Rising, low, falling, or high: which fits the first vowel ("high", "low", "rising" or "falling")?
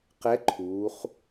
rising